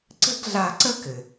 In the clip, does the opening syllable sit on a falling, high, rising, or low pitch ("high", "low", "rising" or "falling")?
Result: high